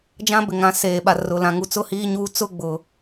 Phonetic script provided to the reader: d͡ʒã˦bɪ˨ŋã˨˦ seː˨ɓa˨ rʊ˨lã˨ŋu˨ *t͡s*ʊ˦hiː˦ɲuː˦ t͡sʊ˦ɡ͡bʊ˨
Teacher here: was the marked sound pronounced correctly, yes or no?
yes